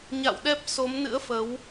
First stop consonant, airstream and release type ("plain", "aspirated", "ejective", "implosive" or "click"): implosive